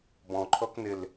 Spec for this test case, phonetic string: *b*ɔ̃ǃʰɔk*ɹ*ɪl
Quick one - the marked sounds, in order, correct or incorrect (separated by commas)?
correct, incorrect